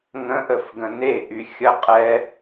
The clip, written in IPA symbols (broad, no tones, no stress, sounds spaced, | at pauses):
ŋ ə̃ ʔ ə f ɡ ə̃ n e ʔ y xʲ ə qʼ ɛ